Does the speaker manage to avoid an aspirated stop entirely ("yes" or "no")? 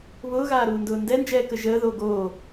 yes